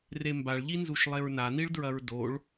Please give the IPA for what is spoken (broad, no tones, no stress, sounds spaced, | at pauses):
r e m b a ɭ ʎ i n z u ʃ lˠ e ɹ n a n i ɭ d ɹ ɐ ɹ d o ɭ